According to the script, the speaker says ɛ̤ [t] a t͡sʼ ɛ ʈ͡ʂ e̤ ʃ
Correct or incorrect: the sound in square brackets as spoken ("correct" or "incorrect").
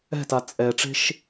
correct